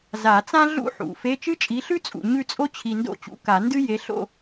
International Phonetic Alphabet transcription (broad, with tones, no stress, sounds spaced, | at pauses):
z a˨˩˦ t͡s ã˥ ɮ ṵ˥ ħ ṵ˨˩˦ f e˧˥˧ t͡ʃ ɨ˥ t͡ʃʼ i˨˥ ɬ ʉ˥ t͡sʼ ṵ˨ ɲ ʉ˥˨ t͡sʼ o˥ t͡ɕʰ i˨ n d o̰˥˨ t͡ɕ ṵ˨˥ k a˨˩˦ n d ɨ˥ j e˨˥ ɬ o̰˥˨